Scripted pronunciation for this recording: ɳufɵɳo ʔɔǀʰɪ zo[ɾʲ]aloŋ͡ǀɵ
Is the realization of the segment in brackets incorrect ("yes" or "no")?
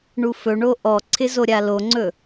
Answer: no